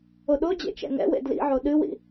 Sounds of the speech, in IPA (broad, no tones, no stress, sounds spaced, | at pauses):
o ɗ o d͡ʑ ḛ t͡ʃ ɛ̰ ŋ ɛ̰ w ḛ d l ḭ ʕ o ɗ ɨ w ḭ